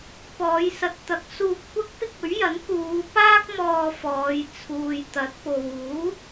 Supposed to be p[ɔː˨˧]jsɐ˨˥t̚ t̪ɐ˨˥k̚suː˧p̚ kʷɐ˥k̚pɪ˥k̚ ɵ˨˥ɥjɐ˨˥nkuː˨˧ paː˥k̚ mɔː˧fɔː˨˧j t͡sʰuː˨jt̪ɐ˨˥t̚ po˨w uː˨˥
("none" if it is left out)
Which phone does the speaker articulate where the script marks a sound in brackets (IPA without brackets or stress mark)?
ɔː˨˧